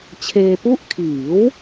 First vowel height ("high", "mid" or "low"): mid